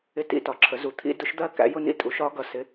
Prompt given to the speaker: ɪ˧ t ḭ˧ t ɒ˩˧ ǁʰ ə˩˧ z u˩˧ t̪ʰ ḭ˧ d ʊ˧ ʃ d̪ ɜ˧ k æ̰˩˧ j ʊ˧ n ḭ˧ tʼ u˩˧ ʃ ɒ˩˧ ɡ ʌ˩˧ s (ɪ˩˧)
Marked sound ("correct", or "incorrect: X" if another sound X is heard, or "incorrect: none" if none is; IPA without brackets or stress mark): correct